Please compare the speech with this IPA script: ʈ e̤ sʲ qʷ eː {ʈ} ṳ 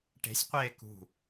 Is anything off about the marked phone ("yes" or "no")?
yes